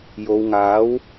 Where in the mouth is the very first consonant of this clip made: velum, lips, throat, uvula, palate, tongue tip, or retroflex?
palate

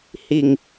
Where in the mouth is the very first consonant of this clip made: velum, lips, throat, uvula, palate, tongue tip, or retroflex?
throat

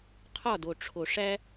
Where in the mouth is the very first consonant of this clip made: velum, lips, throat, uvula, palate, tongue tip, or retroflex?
uvula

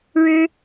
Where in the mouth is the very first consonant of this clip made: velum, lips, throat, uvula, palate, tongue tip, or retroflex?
retroflex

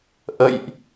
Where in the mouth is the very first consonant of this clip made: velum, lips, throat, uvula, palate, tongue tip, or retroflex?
throat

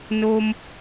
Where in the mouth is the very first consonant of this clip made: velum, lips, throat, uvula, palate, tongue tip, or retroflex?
tongue tip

